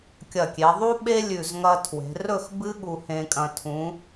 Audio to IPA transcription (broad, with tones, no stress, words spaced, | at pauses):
kʲɐ˧˩kʲe˩˧ðˤu˥ɓe˥ lʲʉ˧˩zŋɐ˧tʰwe̤˩˧ rɵ˥˧x bɨ˥ɠu˧hẽ˧kʼɐ̃˧ tʰũ˩˧